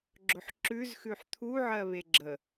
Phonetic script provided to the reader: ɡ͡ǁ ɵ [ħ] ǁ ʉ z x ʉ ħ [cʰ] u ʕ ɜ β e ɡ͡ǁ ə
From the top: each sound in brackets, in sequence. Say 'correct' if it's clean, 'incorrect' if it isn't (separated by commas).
correct, incorrect